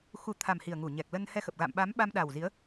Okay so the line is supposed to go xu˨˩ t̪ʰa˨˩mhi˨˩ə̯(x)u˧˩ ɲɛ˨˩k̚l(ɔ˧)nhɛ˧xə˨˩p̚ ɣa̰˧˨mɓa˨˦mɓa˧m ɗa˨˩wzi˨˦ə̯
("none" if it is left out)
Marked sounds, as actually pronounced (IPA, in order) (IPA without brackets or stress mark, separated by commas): ŋ, ə˧